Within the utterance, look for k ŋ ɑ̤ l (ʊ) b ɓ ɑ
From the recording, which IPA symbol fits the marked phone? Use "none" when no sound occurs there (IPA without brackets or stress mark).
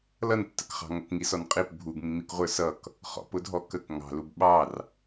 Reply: u